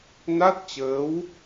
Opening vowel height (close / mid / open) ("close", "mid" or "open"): open